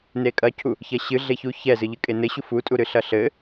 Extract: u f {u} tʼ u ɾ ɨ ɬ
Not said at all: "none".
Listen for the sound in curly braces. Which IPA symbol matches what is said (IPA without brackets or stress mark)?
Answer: u